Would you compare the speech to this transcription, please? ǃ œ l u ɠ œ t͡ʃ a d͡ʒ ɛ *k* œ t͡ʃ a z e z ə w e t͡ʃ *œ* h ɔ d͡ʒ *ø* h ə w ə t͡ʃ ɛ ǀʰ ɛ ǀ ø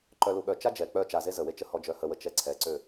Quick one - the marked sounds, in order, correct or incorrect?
incorrect: k͡p, incorrect: ə, incorrect: œ

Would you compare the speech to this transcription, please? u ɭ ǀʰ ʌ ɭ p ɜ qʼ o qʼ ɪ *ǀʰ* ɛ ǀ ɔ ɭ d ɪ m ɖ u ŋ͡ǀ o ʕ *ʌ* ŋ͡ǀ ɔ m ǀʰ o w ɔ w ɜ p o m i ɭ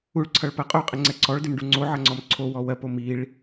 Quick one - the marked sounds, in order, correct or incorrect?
incorrect: ŋ͡ǀ, correct

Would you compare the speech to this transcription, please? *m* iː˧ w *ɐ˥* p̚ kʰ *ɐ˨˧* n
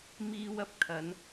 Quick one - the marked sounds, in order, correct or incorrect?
correct, incorrect: ɐ˨˥, correct

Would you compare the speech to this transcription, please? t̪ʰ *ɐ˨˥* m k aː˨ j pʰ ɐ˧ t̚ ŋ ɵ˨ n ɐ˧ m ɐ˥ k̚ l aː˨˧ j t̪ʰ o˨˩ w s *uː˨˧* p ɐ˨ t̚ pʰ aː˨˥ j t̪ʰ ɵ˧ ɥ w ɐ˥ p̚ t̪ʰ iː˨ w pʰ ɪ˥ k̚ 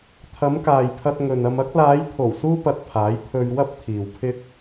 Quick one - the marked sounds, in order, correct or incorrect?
incorrect: ɐ˨˧, incorrect: uː˧

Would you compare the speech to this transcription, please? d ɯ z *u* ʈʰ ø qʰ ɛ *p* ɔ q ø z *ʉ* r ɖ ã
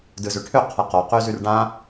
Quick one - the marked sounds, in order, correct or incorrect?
incorrect: ø, incorrect: q, correct

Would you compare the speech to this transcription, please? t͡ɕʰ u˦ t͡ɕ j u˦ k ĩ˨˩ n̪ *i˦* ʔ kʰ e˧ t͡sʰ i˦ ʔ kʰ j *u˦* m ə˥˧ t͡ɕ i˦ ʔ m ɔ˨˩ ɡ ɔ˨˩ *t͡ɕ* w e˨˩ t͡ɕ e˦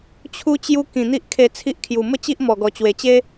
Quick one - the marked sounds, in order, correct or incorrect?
correct, incorrect: u˨˩, correct

